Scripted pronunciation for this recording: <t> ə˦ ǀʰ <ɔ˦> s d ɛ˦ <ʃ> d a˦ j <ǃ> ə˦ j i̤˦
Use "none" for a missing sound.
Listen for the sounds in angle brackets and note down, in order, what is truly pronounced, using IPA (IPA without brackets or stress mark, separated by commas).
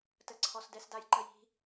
t, ɔ˦, s, ǃ